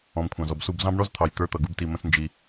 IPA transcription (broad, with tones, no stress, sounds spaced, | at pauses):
ɔ̃˨ m kʷʰ ɑ̃˨ z ɔ˨ b s u˦˨ b z ɑ̃˦ b ɳ ɔ˦ z t̪ʰ ɑ˨ j t̪ ə˞˦ t̪ ʌ˨ ɡ u˦ b t i˧ m ə̃˦ s n d͡ʒ i˧